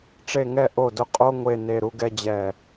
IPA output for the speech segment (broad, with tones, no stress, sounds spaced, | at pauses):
ʈ͡ʂ e˦˨ ŋ ɛ˦˨ ʔ o˦˨ d ʊ˦ qʼ o˦ ŋʷ e˦˨ n e˦˨ ɾ u˦ ɡ ɛ˦ d͡ʑ ɛ˦˨